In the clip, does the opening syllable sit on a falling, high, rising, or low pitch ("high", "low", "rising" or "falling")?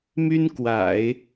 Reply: high